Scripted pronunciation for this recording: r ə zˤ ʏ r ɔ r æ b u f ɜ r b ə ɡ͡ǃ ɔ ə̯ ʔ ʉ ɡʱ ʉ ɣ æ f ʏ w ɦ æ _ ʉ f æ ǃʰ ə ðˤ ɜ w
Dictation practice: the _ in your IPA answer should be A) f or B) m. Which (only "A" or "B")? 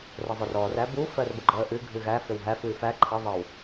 A